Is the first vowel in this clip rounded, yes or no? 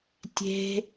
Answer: no